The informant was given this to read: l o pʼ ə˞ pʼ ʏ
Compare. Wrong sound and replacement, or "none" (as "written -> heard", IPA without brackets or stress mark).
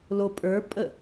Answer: ʏ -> ə